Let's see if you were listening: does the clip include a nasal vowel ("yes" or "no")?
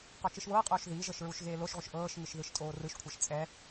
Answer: no